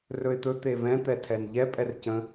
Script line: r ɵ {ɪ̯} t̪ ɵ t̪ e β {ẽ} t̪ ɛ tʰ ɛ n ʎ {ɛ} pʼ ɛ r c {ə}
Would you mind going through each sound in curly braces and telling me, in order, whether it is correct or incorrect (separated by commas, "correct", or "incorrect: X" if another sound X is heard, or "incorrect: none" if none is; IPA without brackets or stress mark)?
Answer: correct, incorrect: ɛ̃, correct, incorrect: ə̃